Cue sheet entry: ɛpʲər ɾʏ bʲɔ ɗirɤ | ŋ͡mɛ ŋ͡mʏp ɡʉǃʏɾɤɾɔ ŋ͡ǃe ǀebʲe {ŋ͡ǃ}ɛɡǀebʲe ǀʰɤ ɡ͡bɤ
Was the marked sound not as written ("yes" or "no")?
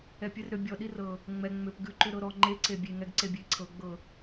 yes